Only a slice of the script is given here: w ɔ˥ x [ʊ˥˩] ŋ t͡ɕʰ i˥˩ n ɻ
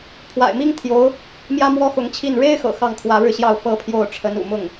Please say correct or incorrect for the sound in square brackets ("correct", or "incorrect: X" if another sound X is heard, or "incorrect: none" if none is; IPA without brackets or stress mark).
incorrect: ʊ˧˥